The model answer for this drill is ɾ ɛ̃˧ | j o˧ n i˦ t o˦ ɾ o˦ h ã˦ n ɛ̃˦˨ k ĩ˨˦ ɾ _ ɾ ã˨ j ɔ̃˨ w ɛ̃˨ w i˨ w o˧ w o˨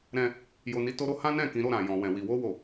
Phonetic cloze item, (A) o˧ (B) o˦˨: B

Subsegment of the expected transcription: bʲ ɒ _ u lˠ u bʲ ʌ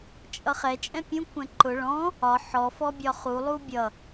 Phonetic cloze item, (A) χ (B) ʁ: A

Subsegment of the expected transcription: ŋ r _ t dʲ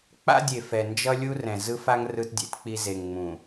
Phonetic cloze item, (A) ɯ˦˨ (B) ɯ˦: B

